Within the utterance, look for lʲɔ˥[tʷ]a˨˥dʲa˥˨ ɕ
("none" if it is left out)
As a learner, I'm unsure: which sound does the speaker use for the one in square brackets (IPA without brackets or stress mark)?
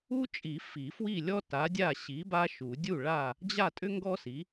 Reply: t